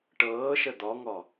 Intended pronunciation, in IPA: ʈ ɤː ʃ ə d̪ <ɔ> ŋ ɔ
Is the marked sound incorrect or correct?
correct